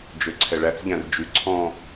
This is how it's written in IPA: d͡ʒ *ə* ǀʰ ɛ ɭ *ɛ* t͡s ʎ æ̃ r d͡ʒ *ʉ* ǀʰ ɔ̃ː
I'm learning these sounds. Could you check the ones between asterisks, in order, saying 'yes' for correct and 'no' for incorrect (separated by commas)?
no, no, yes